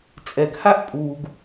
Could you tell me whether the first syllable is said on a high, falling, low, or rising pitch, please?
low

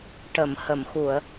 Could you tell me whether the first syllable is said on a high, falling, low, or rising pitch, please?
low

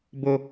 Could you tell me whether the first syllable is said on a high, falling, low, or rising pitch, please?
high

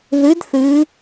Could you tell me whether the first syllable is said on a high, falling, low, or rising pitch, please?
rising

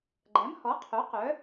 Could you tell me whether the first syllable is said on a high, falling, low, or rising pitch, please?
rising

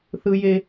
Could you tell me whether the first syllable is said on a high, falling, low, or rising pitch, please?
high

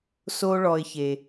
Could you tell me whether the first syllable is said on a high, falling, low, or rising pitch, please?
high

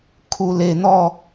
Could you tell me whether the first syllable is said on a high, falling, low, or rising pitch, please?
low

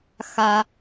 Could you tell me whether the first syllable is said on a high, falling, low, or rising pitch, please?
low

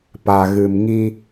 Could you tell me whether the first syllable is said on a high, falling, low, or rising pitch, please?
low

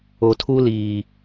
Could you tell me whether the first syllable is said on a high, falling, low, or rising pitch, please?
low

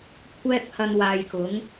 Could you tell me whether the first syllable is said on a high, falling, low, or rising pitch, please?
high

